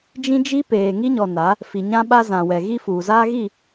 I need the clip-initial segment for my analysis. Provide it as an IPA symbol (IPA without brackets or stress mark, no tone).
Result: d͡ʒ